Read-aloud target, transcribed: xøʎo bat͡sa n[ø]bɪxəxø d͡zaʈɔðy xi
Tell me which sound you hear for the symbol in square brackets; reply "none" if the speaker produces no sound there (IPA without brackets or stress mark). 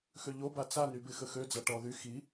y